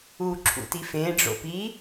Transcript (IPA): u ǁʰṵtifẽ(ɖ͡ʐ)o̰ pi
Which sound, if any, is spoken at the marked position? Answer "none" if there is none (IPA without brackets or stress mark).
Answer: ɖ͡ʐ